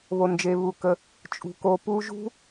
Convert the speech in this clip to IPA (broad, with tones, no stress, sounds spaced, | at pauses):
β o˨ n d͡ʒ e˨ β u˨ k ə˧ | t͡ʃʼ ṳ˨ k o˧ p u˦ ʒ ṳ˦